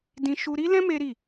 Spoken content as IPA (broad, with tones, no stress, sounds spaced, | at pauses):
d ĩ˦ ʃ u˧ ɾ i˦ l ɛ̃˦ m e˦ ɾ i˦˨